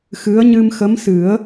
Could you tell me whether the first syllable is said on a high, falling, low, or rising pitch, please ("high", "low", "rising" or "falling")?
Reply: rising